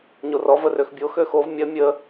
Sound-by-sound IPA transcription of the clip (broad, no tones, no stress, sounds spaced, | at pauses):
ɲ o r ɔ v ə r ø x bʲ o x ø x o v mʲ ɐ mʲ ə